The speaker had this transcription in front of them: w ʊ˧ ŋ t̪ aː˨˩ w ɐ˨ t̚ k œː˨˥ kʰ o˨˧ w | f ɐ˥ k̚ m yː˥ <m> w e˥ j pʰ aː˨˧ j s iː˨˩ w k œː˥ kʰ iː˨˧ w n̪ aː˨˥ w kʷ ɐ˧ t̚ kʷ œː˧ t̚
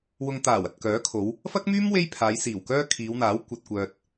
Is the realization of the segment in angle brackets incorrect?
no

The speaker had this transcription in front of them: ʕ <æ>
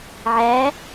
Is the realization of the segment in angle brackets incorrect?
no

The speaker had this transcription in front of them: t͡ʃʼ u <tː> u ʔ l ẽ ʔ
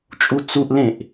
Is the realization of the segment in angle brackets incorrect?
yes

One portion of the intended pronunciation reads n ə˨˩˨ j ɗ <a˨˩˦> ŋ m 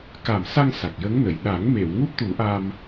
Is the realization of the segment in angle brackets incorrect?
no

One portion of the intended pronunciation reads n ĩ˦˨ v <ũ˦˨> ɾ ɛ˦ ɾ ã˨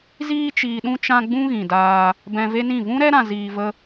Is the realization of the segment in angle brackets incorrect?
yes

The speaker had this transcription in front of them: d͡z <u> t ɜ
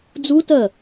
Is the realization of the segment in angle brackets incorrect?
no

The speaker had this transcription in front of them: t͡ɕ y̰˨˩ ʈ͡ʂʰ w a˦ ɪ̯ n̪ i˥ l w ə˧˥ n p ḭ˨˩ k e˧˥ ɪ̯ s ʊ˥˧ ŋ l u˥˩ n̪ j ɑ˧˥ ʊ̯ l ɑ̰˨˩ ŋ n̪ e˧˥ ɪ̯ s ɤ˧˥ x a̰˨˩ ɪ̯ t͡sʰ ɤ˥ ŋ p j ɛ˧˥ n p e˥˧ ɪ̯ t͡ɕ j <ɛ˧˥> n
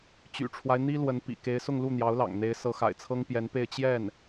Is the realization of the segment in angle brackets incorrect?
yes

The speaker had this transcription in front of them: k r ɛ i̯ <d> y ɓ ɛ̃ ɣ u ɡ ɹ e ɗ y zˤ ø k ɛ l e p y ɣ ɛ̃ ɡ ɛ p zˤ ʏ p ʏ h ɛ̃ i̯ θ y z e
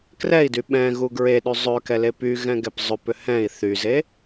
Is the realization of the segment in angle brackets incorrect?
no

